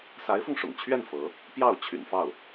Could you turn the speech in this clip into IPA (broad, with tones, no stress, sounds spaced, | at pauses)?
s a˧˥ ɪ̯ f ʊ˧ ŋ ʂ ʊ̰˨˩ ŋ t͡ɕʰ ɥ ɛ˥˩ n f ɤ˧˥ | p j ɑ˥˩ ʊ̯ t͡ɕʰ y̰˨˩ n f ɑ˥˩ ʊ̯